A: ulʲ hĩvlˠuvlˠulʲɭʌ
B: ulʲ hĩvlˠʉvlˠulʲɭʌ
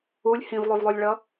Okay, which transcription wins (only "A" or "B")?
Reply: B